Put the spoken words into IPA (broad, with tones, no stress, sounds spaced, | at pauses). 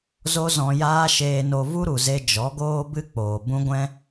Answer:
z o˦ z ɔ̃˧ j aː˦ ʃ eː˧ n o˧ v u˦ ɾ u˨ z e˧ d͡ʒ ɔ˨˦ ɡ oː˦ b ɨ˦ k͡p oː˨ b ũ˦ ɡʷ ɛ̃˦